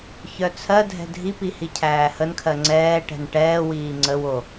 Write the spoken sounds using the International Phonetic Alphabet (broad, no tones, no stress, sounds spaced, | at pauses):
ç œ t͡sʰ ɜ dʱ ɛ̤ dʱ i p i h i cʰ æː h ə n kʰ ɜ ŋ͡ǀ ɛː ʈ ɛ̤ n ʈ ɛː w iː ŋ͡ǀ ə w o